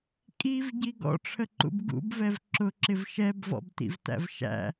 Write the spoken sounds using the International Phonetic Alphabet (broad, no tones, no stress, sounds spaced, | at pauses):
kʼ i v ɟ i ɡ ɔ̰ ʈ͡ʂʰ ə ǃ ṵ b ɡ ṵ b v ɛ v ǁ ʊ ǁ ɪ v ʃ ɛ b v ɔ̰ b t ḭ v t æ̰ v ʃ æ̰